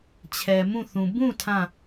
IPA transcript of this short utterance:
t͡ɕʰɛ˨mũ˦˨θũ˨ bũ˦˨ tʰã˦˨

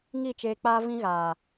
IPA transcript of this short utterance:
ŋi˦˨t͡ʃeː˧k͡paː˦vĩ˦ ɣaː˨

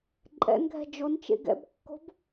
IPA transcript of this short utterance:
ǃʼɛ̰nɡʱɛ̤ d͡ʒon t͡ʃḛɡɛ̰bkːo̤b

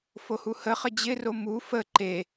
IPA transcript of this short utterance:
fohuhə χəd͡ʑɪ romu fə ǃe

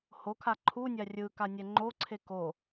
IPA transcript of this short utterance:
hokʰa ǃʰunʲa rʲɯkanʲɛ ŋ͡ǃoǀʰe ko

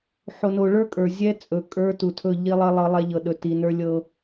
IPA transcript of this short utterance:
ħo˨no˨ɭə˞˦ kʼə˞˨ zʲɛ˦ t͡sʼɵ˨ kʼə˞˦tu˨tʰɵ˦˨ ʎi˦lˠə˦lˠɤ˦ lˠɛ˦ʎɤ˨ɗɵ˨ ti˨nə˞˦lʲɤ˦

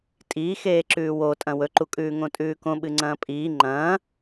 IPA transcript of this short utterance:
tʼiːxeːǁʉː wotʼɐ̃ wɵǃukʼʉːŋõ tʼʉːkõ ɓɨŋ͡ǀɐ̃ːpʼiː ŋ͡ǃɐ̃ː

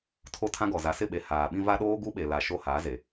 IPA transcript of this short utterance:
tʰo˦tʰã˦ɡɔ˨ za˨sɪ˦˨ɓe˨ haː˨ɓĩ˦ va˦ɗoː˦ ɡu˦ɓe˨la˨ ʃo˦ haː˨˦ze˨

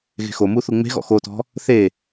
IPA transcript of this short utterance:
ɣe̤xomu θuŋ͡me̤ɣɔ̰ xotɔ̤ | θe

